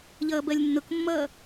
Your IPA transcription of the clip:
ʎ ʌː b ɜ lʲ nː ʊ k mː ʌː

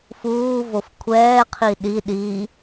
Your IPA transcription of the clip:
f uː v o f kʷʰ ɛː qʰ i ɗ i ɗ i

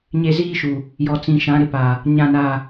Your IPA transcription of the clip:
ɲ e˦ z iː˦ ʃ u˨ | j ɔ˨ t͡s ĩ˨ ʃ ã˨˦ ɾ ɪ˨ p a˨ | ɲ ã˦˨ n a˦˨

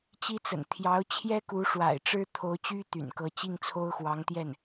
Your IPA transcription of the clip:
t͡ɕ i˥ t͡s ə̰˨˩ n t̪ʰ j ɑ˧˥ ʊ̯ t͡ɕʰ j ɛ˥ k u˧˥ ʂ w a̰˨˩ ɪ̯ ʈ͡ʂ ɻ̩˥ t̪ʰ o˧˥ ʊ̯ t͡ɕ y˥ t̪ y̰˨˩ n k ɤ˧˥ t͡ɕ i˥˩ ŋ t͡sʰ o˥ ʊ̯ x w ɑ˧˥ ŋ t̪ j ɛ˥˩ n

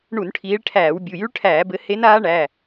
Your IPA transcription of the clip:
ɳ u˧˩˧ n ʈʰ iː˨˦ ɭ ʈʰ æː˧˩˧ w bʲ u˩˧˩ j y˦˥ ɭ ʈʰ æː˧˩˧ b ɘ˨˦ h e˦˥ n aː˦˥ ɳ æ˩˧˩

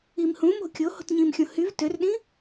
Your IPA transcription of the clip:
i m h ũ m o̤ kʲ o h o̤ t ɲ ĩ m xʲ õ h y v t ø r ɗ ĩ

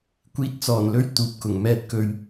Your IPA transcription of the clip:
kʷ iː˧ t̚ t͡s ɔː˨˩ n l ɵ˧ ɥ t̪ uː˨ p̚ k ʊ˨˩ ŋ m ɛː˧ t̚ k ɵ˨ ɥ

